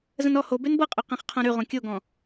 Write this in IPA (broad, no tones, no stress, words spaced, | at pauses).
zə̃nɔ hoben bɤqʼø qẽχqʰõɾyʁõ kʲoɡɔ̃